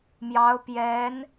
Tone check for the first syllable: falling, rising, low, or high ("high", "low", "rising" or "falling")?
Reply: rising